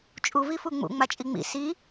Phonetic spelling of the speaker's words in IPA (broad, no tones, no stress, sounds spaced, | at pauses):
t͡ʃʼ u v i f u ŋ͡m ṵ ŋ͡m a t͡ʃʼ i ŋ͡m ḭ s i